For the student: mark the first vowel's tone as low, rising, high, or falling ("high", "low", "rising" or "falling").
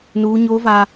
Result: high